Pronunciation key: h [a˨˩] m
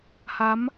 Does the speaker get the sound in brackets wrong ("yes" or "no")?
yes